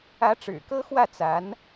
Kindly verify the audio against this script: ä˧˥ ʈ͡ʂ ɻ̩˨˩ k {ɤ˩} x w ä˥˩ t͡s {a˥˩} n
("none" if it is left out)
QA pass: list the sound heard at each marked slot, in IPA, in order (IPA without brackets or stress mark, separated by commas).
ɤ˥, a˧˥